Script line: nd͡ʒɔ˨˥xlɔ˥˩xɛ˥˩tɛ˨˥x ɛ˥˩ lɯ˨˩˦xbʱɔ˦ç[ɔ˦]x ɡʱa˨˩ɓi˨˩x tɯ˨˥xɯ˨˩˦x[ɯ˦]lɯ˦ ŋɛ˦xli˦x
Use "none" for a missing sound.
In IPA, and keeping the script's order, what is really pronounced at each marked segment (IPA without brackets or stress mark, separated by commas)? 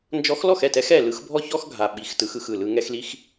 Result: ɔ˦, ɯ˥˩